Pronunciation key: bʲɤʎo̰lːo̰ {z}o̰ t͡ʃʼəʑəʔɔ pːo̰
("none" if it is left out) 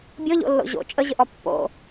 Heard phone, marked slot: ʑ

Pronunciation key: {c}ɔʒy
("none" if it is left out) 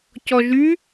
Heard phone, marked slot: c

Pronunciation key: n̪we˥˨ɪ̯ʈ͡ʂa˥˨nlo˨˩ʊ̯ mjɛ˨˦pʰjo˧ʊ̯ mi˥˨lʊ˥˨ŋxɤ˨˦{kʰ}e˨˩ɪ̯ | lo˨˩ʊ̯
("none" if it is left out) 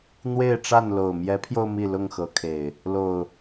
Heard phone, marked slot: kʰ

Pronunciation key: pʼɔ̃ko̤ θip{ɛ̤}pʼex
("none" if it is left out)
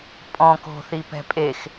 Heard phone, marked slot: ɛ̤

